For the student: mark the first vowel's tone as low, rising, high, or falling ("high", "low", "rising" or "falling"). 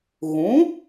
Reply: rising